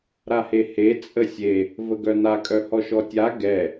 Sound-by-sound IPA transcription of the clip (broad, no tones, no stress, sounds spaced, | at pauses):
ɾ a h e h e t͡sʼ ə sʲ e | v ə ɡ œ n a kʼ œ h ɔ ʃ ɔ tʲ a ɡ ɛ